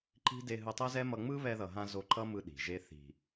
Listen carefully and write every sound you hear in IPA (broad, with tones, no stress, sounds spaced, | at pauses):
ǃ i̤˦ d e˧ ɦ ɯ˧ tˤ ɛ˦ z ɛ˦ m ʌ˧ ŋ͡m ɯ˦ β ɛ˧ ð ʌ˨ ɦ ã˧ z o˧ ǃ ʌ˦ m ɯ˧ ɗ i̤˨ ʒ e˦ θ i̤˨